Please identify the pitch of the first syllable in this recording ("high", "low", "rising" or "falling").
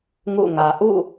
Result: falling